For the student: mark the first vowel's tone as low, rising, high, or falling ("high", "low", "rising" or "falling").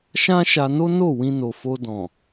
high